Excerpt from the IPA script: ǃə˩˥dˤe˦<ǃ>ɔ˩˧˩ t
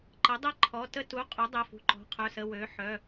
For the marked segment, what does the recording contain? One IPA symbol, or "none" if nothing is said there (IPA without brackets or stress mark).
ǃʰ